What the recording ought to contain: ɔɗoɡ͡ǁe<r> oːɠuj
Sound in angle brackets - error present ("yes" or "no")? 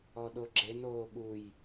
yes